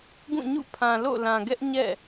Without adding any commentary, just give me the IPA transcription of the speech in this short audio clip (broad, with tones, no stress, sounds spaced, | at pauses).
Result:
ɡ ũ˦˨ ɲ ṵ˦˨ pʰ ã˨ l o̰˦˨ l ã˨ ɡ ɛ˦ ʔ ɲ ɛ̰˦˨